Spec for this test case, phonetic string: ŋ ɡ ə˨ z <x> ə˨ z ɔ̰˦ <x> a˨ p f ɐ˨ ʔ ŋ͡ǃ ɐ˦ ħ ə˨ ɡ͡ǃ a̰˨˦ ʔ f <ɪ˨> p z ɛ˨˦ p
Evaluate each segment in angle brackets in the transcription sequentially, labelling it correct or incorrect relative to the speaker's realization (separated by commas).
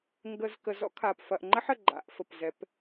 incorrect, incorrect, incorrect